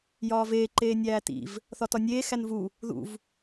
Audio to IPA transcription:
jɒːveː ǃeːnʲæːtḭv | θɒtɒnʲeː xænvu | ðṵv

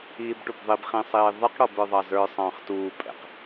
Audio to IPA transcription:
iːbʈubðˤib χĩsˤiːðˤəq ɽɔbə˞ðˤɑzə˞ sˤɑ̃ːχtuː pʼɛ̰q

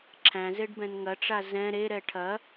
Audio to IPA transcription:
ǁʰæ̃zeɖbɛ̃n ŋɐʈ͡ʂa zɛ̃ ɾeɾɛ ʈʰɐ

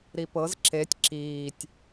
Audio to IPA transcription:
ɾipɤz ǁetʲ ǁiːtʲ

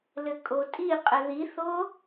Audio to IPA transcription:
lɘkʼotʼiqʼɘ ðiθo

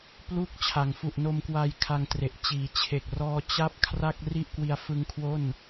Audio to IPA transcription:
plu˥˩k̚ t͡ɕʰa˩˦ŋfu˨˩ʔno˧mkwaː˧j kʰa˧ŋtre˨˩ʔ t͡ɕiː˩˦ t͡ɕʰe˨˩k̚rɔː˧ t͡ɕa˦˥p̚ kʰra˥˩k̚ri˥˩ʔkwi˧a̯fɯ˦˥ŋ kʰwo˥˩n

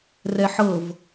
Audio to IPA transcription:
rɛħɤv

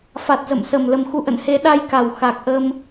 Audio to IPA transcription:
fa˨˩t̚zə̰˧˨msə˨˩m lə˨˩mxu˨˦ ʔə̰˧˨nhe˨˦ ɗa˧jka˨˩w xa˨˩k̚ʔə˧m

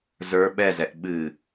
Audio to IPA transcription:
zə˞ ɓɛzɛʔ ɓɨ

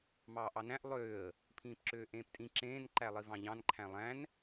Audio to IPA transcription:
mɑːʔɑnæ̃ʔ lˠøːə̯ | pʰĩːpǁøːʔẽːptʼĩ ǁẽːn ǃælˠivɑ̃ʎɑ̃n ǃʰæ̃lˠæ̃n

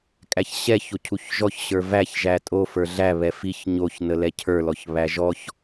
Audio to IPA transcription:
kʼæçɕɛ çocʰuçʒɔç ɕə˞væç ʒætʼo fə˞ɮæ βɛfiç ɲoç nəlɛcʰə˞ lɔçβæʒɔç

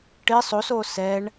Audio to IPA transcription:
ʈɪ sˤoso sɛɳ

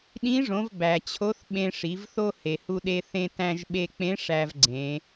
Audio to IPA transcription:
ɗĩ˧˥ʐõ˩˧v bæ˩t͡ɕʰo˧˥θ ɓẽ˧ʂi˩˧vθo˥ he˩hu˧ɗe˧ θẽ˧tæ̃˧ʒɓe˧k͡pẽ˧˥ ʂæ˧vɡ͡ǀẽ˩˧

